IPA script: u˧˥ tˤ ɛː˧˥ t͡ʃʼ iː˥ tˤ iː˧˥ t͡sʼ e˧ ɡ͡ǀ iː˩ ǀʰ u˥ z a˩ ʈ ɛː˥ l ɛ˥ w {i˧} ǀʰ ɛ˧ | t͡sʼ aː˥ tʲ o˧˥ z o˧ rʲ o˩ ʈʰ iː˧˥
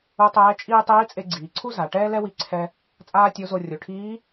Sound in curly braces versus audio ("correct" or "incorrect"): correct